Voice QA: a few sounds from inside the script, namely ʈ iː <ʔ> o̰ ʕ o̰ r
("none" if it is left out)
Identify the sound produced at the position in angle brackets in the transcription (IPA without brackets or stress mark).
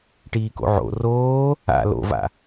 k